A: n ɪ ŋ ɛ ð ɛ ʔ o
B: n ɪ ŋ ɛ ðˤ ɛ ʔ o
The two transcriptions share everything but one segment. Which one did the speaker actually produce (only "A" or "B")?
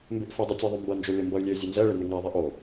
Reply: B